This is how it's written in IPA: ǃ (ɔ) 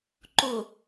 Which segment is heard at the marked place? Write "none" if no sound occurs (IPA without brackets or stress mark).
o